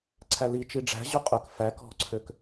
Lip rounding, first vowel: unrounded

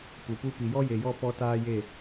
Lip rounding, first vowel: rounded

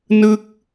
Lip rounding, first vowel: unrounded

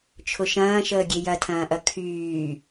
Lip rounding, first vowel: rounded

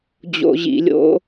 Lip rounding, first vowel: rounded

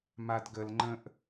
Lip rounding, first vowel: unrounded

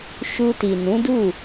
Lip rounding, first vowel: rounded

